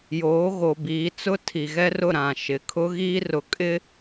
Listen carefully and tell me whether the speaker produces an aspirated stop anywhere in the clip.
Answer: yes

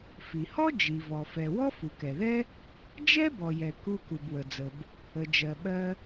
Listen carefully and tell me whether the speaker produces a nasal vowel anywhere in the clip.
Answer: no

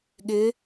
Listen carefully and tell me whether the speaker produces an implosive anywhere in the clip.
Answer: yes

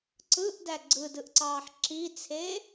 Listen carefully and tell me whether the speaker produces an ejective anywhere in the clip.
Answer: no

